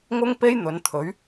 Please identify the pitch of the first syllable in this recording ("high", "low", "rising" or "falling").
high